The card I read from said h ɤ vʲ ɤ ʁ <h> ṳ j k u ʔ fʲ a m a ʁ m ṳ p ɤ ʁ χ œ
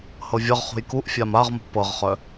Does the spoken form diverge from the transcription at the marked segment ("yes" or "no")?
yes